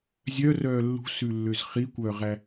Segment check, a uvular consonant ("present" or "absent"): present